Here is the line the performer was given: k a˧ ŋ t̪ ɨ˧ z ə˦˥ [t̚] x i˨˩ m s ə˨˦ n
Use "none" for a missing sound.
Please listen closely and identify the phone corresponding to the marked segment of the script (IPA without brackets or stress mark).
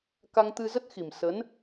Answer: t̚